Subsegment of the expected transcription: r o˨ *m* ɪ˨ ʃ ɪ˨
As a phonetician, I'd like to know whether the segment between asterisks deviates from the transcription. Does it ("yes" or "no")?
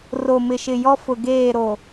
no